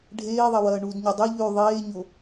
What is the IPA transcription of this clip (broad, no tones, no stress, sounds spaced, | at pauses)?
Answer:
ɖʱ eː ðˤ ɐ w ɐː ɳ u d ɲ e dˤ i ʎ ʉ ðˤ eː ɲ o